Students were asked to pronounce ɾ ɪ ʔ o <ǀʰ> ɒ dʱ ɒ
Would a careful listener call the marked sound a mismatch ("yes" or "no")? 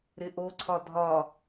no